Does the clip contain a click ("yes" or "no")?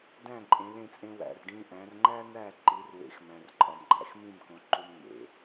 yes